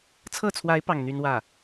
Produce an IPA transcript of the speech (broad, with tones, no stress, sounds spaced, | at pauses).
t͡sʰ ɤ˥˩ t͡sʰ w a˧˥ ɪ̯ p ɑ˥˩ ŋ n̪ y˥ n w ä˥˩